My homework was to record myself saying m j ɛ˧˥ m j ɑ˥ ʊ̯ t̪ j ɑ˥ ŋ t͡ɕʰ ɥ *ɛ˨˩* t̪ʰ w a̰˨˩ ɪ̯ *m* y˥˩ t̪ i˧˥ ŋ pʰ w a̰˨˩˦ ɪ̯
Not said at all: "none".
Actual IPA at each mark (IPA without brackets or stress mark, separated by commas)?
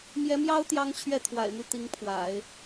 ɛ˥˩, m